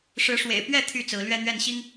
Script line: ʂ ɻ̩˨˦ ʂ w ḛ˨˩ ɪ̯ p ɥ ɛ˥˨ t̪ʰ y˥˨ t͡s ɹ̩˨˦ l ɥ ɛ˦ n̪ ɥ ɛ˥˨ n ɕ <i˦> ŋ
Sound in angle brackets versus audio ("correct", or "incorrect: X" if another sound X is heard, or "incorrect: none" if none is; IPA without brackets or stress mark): correct